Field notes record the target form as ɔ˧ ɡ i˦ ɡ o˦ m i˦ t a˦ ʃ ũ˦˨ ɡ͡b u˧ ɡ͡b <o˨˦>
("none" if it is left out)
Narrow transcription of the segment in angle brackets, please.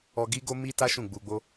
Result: o˦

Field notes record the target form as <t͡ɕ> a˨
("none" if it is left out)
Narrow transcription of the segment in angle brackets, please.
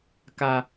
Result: k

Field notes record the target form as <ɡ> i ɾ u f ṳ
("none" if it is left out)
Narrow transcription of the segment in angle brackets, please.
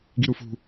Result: ɡ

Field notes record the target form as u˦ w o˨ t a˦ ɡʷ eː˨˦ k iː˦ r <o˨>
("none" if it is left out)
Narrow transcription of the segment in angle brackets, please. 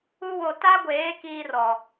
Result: ɔ˨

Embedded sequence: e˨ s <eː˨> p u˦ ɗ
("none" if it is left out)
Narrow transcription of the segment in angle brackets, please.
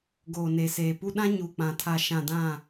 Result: eː˨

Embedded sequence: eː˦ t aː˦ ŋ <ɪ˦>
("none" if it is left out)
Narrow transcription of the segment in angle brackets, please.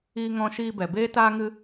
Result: ɨ˦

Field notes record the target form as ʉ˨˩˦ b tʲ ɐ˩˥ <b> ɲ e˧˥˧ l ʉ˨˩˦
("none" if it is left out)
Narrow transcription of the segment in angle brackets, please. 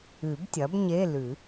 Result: b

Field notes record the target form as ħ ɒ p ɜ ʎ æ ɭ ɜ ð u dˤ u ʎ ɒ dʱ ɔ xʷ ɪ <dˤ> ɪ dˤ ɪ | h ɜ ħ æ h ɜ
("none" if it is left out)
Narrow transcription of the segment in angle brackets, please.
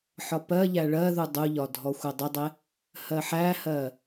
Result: dˤ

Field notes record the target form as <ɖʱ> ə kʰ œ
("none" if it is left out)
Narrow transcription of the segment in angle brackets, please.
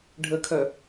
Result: ɖʱ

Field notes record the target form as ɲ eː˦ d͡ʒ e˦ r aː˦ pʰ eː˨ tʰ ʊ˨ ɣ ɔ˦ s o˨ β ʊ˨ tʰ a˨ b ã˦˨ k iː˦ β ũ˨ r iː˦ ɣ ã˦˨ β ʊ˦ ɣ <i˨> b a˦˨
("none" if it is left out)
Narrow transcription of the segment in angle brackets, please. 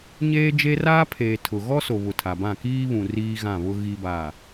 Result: i˦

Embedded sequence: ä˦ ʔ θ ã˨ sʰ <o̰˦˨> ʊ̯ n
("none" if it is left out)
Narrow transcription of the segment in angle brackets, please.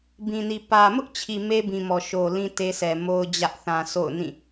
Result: o̰˦˨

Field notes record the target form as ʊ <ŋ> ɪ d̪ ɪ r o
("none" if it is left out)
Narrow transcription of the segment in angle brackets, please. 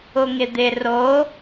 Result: ŋ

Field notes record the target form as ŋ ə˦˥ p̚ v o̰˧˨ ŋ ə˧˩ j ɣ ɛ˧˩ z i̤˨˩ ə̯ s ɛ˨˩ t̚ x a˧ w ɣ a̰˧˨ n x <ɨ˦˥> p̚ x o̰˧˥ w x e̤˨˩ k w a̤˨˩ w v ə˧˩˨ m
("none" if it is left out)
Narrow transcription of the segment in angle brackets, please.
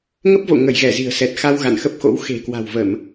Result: ə˦˥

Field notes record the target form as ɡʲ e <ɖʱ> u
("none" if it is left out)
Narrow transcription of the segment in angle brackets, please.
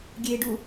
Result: ɖ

